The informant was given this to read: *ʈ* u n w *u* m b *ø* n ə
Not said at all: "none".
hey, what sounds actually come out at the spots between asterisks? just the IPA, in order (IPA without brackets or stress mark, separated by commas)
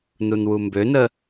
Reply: n, u, ø